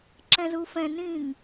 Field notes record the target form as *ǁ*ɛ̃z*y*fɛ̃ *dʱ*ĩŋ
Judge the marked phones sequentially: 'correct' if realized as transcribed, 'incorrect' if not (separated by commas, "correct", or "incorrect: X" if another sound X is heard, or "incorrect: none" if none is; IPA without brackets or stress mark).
correct, incorrect: u, incorrect: n